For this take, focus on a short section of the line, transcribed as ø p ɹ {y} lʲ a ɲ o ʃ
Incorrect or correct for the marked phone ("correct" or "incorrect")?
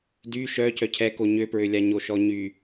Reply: incorrect